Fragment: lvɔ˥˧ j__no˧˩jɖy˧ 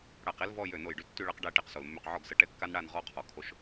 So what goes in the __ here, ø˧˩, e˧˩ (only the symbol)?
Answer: ø˧˩